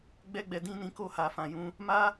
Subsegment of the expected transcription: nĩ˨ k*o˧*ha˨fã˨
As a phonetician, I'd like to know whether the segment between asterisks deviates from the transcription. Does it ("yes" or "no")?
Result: no